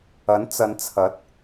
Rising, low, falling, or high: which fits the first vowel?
rising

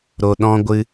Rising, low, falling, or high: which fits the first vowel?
low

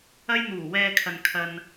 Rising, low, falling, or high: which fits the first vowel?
high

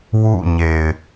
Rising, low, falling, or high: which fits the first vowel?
falling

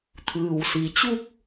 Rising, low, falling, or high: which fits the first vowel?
low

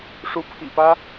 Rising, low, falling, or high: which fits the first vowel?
rising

